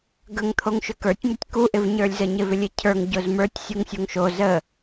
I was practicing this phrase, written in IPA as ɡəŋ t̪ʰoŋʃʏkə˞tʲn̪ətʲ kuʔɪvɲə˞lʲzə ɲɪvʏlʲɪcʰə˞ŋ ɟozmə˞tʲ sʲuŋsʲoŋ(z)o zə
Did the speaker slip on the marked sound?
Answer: yes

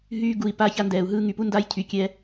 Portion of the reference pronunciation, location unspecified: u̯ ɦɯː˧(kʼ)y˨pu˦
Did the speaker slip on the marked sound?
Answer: yes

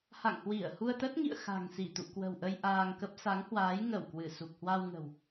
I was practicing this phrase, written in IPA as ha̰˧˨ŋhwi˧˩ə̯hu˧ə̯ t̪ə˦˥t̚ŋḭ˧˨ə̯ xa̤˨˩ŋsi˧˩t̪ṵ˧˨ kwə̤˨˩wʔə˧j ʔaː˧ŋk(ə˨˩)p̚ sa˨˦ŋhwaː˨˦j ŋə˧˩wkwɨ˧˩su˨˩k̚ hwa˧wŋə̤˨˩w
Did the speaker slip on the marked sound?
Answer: yes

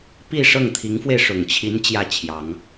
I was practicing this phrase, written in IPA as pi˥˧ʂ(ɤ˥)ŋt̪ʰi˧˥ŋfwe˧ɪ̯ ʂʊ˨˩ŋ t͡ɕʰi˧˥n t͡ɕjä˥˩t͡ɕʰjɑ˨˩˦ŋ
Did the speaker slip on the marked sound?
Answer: yes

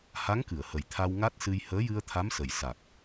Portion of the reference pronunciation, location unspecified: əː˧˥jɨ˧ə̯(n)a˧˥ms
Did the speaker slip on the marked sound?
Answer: yes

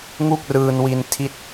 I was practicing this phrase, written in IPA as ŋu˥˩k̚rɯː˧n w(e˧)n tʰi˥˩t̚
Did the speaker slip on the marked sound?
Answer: yes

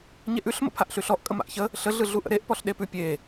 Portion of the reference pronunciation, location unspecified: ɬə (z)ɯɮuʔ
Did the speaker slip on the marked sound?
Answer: yes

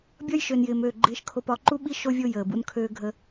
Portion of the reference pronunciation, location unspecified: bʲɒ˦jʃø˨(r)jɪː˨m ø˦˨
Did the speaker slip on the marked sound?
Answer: yes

